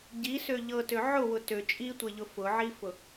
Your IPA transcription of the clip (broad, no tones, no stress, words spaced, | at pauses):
ɟisø ʎɤtø ʕʊwʊ tø t͡ʃʼitʷeʎʊ fʊʕifʊ